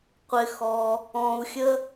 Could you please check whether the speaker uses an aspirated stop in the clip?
no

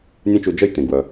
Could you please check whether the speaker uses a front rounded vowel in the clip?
yes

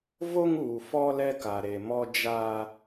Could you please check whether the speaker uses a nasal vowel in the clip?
no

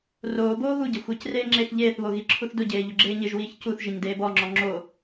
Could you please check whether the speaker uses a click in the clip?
yes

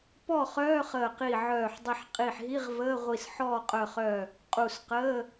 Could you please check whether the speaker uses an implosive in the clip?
no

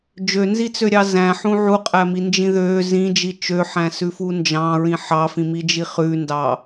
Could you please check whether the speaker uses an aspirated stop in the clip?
no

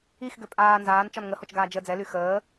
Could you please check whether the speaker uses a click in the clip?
no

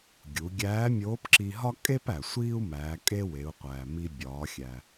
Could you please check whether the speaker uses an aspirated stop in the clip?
no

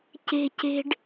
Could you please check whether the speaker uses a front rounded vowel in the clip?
no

